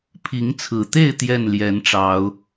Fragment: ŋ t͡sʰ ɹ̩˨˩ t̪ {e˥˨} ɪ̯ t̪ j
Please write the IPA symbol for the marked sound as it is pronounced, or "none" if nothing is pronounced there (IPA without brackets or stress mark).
e˥˨